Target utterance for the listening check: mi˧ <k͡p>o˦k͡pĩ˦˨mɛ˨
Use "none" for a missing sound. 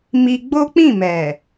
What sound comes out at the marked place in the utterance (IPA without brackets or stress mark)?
ɡ͡b